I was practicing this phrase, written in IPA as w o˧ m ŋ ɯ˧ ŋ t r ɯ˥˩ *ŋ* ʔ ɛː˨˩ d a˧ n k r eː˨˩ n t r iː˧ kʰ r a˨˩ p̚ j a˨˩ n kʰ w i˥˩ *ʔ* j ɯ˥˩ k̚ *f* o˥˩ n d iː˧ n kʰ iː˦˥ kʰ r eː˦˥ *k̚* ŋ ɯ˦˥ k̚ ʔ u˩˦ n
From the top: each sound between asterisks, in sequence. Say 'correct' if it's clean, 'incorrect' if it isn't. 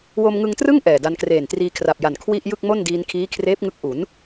correct, correct, incorrect, incorrect

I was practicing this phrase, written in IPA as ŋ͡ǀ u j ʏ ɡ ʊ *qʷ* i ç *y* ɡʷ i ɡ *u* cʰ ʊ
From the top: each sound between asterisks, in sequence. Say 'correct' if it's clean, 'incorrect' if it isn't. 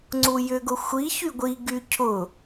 incorrect, correct, incorrect

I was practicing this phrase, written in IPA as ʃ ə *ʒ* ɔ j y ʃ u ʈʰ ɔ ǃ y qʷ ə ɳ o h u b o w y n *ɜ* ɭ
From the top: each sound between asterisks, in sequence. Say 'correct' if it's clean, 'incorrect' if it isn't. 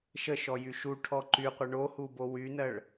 incorrect, correct

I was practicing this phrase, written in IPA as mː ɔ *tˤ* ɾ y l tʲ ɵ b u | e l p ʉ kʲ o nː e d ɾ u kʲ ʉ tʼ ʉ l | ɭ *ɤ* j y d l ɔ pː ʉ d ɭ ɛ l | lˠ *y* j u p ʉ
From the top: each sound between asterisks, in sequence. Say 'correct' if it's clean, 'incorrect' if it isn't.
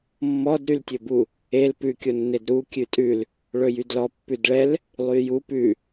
incorrect, incorrect, correct

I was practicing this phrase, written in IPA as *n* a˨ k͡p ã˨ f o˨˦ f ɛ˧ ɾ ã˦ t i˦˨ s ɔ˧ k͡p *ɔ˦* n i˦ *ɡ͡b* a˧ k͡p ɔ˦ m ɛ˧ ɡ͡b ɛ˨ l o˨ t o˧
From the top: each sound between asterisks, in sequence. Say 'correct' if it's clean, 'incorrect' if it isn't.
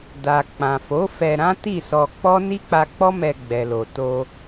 incorrect, correct, incorrect

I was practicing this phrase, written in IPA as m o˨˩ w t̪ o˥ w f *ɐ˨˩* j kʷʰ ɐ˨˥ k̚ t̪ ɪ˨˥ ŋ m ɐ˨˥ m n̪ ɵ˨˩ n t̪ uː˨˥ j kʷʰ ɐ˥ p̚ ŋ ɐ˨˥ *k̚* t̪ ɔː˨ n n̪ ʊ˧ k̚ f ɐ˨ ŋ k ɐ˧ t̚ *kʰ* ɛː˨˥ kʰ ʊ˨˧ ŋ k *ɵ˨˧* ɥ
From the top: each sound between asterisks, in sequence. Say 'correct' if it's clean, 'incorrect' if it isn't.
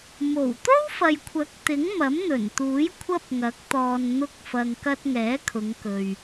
incorrect, correct, incorrect, incorrect

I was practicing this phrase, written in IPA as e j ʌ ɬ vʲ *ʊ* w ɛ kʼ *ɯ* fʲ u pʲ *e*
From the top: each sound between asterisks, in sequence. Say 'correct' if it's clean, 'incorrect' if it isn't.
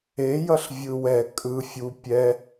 incorrect, correct, incorrect

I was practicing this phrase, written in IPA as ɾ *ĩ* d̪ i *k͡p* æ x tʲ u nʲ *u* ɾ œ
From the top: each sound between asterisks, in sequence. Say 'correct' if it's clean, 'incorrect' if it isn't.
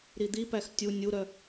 incorrect, incorrect, correct

